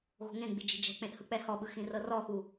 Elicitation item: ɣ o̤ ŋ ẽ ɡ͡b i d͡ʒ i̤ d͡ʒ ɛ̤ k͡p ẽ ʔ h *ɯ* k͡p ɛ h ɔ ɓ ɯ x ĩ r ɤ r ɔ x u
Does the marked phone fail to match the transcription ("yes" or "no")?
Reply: no